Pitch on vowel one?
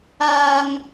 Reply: high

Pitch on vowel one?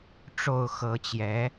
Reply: low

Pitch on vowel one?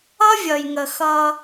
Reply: high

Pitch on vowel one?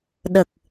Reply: low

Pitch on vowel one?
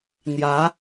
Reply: rising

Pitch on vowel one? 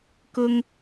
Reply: high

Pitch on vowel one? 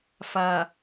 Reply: low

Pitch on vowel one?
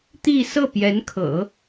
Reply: falling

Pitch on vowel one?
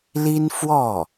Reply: high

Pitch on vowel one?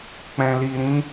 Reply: low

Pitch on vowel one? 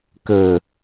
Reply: low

